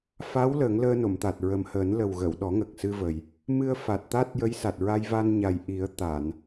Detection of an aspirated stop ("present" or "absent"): absent